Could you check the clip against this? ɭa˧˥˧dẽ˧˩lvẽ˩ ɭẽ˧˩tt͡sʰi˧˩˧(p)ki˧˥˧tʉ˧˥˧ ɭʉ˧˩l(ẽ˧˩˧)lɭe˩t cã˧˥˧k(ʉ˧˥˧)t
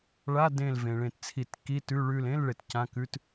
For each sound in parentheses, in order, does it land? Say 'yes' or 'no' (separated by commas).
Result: no, no, yes